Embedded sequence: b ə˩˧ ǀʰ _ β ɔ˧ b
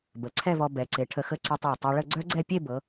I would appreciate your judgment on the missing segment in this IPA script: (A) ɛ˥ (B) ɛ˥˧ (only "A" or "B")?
B